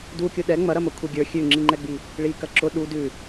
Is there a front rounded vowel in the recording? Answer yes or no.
no